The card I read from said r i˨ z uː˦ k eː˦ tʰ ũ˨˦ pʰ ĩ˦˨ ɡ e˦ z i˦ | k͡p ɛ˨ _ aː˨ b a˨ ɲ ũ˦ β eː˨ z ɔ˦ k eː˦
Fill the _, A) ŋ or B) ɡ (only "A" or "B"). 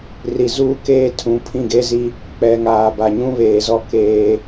A